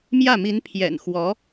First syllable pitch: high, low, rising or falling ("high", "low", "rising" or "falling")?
falling